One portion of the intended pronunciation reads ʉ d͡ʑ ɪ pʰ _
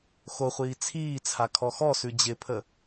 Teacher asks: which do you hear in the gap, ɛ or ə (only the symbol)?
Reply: ə